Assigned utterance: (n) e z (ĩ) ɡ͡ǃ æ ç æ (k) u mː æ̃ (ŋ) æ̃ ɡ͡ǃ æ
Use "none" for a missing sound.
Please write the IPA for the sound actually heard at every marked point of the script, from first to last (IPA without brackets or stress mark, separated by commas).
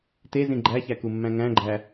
t, ĩ, k, ŋ